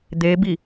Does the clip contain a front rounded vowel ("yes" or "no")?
no